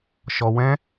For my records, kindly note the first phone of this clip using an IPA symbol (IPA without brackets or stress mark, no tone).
ʃ